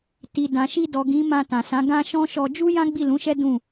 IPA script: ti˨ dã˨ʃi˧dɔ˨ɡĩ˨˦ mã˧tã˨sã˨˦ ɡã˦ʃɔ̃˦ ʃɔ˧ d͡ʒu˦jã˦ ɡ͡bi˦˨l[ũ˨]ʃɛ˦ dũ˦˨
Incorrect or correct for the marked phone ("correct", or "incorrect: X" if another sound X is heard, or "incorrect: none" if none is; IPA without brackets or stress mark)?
incorrect: ũ˨˦